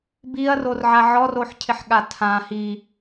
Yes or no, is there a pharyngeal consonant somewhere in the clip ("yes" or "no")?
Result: yes